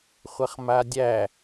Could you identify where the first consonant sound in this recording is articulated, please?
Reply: uvular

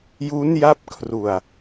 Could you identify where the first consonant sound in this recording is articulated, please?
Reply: palatal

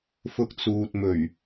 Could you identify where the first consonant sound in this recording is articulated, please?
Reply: labial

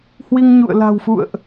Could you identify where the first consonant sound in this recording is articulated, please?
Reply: glottal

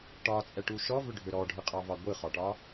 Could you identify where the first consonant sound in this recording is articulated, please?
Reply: retroflex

